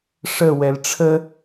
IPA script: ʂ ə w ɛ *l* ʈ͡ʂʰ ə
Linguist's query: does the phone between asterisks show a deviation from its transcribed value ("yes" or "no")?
no